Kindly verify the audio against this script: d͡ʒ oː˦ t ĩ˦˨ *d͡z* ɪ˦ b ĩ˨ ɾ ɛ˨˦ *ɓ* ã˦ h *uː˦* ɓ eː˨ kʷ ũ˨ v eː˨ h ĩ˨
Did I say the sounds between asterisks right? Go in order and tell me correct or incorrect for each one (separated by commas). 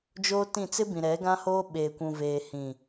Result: incorrect, incorrect, incorrect